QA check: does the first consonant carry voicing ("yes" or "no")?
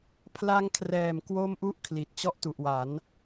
no